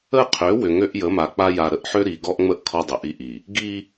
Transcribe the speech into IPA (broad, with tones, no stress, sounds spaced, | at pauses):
ə˦˨ qʰ ø˨˦ w ʏ˨ ŋ ø˦ ʔ j ə˨˦ m a˨ k͡p a˦ j a˨ ɾ ə˨ ʔ ħ ø˦ ɾ i˨ ɡ ɔ˦ ʔ ŋ͡m ə˦ ʔ kʰ ɔ˦ dˤ ə˨ ʔ i˦ ʔ i˨ | ɡ i˦